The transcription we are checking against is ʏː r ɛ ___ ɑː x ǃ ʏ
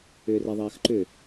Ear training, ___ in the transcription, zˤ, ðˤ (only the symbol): ðˤ